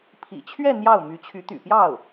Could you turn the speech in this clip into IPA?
pʰ ḭ˨˩ t͡ɕʰ ɥ ɛ˥˧ n̪ j ɑ˥˩ ʊ̯ m y˧˥ t͡ɕʰ y˧˥ t̪ y̰˨˩ p j ɑ˥˩ ʊ̯

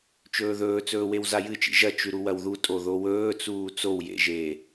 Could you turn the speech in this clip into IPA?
t͡ʃ ɵː ð ɵː t͡s ɵː w e w z a j ɨ t͡ʃ ḭ ʒ ɐ t͡ʃ ʉ ɾ u w ɐ w ð u tʼ o ð o w ɵː t͡s uː t͡s o w j ḛ ʒ eː

